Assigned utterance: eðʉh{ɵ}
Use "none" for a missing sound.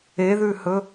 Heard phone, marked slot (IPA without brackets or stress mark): ɵ